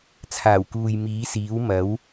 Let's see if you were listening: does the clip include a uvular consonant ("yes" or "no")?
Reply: no